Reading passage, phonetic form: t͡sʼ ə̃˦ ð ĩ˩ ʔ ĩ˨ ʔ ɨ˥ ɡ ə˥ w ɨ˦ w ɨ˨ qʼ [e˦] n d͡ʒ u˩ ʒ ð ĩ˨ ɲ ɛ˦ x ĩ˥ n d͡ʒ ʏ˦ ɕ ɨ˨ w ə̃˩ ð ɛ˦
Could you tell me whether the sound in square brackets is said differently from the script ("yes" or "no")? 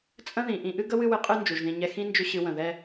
yes